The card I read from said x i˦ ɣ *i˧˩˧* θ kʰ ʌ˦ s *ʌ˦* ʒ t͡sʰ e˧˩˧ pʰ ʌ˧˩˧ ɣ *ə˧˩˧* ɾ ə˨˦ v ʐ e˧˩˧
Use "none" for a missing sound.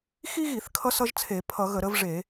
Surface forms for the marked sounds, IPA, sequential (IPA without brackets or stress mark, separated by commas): i˧˩˧, ʌ˦, ə˧˩˧